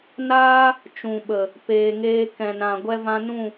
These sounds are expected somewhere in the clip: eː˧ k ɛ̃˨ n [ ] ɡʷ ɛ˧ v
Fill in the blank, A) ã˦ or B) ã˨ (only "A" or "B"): B